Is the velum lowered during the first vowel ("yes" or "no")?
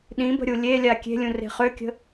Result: yes